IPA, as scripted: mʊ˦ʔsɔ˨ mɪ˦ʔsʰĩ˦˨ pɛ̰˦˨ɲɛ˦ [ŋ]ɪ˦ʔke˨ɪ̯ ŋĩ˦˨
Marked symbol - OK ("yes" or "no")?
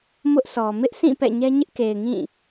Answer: no